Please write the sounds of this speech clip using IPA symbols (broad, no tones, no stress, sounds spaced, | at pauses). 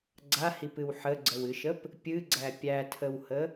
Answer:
ɡ͡ǀ a h i p ɨ w ħ ə ɡ͡ǀ ə w ɨ ʃ ə p | pʲ ɨ ɡ͡ǀ æ pʲ æ tʰ ə w h ə